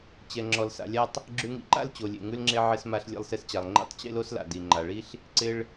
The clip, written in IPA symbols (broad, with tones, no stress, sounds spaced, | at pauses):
t͡ɕ ɛ˩ ŋ͡ǁ ɔ˩ l s a̰˩ lʲ a˧ tˤ | ɡ͡ǁ ʉ˧ ŋ ḭ˧ ǃ a̰˥ l t͡ɕ o˩ lʲ ḛ˩ ŋ ʉ˧ l ŋ͡ǁ e˧ ʕ ɪ˧ s m a˧ ɬ lʲ ḛ˧ lˠ s e˧ s t͡ɕ a˩ lˠ ŋ͡ǃ ḭ˧ tˤ t͡ɕ ḛ˥ l o˥ s l a̰˩ d i˩ ŋ͡ǃ a˩ ɭ i˥ ɬ | ǀ ɪ˧ ɭ